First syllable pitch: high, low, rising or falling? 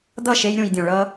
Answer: falling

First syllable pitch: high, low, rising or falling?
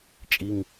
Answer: low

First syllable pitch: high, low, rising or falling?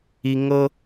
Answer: high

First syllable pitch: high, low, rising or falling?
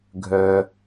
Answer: low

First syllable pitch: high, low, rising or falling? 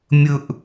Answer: falling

